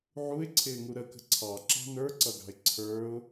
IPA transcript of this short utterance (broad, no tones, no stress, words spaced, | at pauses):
ʕuɪ̯ǀʰɪːŋu ɾəkə̤ ǀʰɑǁɑ̤ nə˞ǀʌɡɑ̤ɪ̯ ǀʰə˞ʊ̯